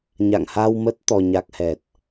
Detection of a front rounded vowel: absent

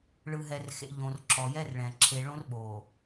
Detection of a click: present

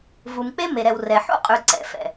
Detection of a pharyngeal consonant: present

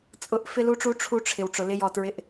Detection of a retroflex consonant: present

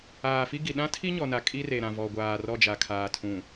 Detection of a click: absent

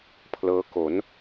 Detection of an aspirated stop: present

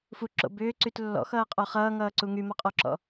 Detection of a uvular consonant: present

